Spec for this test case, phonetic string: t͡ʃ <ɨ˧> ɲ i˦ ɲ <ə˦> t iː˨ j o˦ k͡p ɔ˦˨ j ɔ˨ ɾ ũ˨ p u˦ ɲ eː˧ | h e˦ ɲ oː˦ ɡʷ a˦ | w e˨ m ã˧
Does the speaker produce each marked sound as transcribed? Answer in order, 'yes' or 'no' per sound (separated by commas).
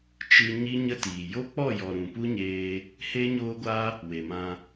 yes, yes